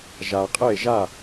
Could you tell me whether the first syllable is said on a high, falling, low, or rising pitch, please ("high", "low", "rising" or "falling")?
low